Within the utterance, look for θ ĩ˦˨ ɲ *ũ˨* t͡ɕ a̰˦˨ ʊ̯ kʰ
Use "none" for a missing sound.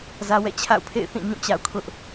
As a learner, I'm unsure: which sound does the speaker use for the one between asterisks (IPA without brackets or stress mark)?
ũ˦˨